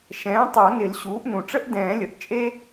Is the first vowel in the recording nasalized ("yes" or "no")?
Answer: yes